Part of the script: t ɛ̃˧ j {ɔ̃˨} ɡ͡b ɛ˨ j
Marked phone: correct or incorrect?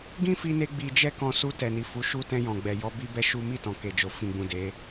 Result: correct